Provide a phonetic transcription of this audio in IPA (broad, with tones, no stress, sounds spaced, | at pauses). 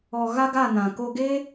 ɔ˨ ɣ a˦ ɡ a˦˨ n ã˨ k o˧ ɡ eː˦